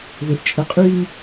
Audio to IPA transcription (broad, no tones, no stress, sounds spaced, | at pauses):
ð ʏ ʔ t͡ʃʼ ə qʼ y m